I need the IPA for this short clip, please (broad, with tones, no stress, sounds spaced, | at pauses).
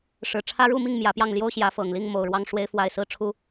ʂ ɻ̩˨˩ ʈ͡ʂʰ ä˦ ɻ u˥˨ m i˥˨ ŋ m j ä˨˦ p j ɑ˥˨ ŋ l j o˦ ʊ̯ ɕ j ä˨˦ f ɤ˨˩ ŋ l i˥˨ ŋ m o˨˩ ʊ̯ ɻ w ɑ˦ ŋ ʂ w e˦ ɪ̯ f w a˥˨ ɪ̯ s ɹ̩˥˨ ʈ͡ʂʰ u˦